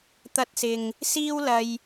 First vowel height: low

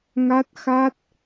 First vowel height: low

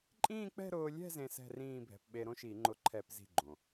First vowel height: high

